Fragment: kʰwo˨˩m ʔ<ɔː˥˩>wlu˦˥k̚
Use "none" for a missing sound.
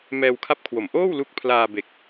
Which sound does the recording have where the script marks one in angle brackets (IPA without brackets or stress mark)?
oː˥˩